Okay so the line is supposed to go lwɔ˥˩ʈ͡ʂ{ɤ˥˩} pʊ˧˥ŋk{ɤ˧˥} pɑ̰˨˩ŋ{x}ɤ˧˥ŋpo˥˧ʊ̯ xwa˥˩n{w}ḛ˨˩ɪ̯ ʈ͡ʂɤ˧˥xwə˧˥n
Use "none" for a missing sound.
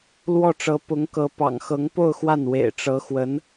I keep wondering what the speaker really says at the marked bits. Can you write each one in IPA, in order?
ɤ˧˥, ɤ˧˥, x, w

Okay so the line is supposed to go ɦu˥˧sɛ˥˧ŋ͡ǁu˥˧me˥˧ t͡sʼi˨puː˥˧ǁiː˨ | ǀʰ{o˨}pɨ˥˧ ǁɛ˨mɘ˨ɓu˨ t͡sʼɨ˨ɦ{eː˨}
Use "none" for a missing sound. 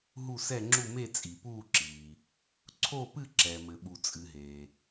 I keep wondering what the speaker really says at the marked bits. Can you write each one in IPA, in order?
o˥˧, eː˨

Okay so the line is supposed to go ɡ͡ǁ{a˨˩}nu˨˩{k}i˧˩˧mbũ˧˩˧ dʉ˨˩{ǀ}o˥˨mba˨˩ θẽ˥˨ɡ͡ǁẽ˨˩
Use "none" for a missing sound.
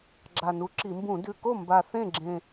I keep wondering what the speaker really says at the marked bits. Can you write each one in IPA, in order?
a˨˩, ǁ, k

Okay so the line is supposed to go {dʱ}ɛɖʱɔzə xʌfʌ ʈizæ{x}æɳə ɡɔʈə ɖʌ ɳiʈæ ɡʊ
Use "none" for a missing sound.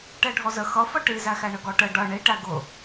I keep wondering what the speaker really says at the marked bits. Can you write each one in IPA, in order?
ʈ, x

